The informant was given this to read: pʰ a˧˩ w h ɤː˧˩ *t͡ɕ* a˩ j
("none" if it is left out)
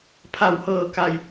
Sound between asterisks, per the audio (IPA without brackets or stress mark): k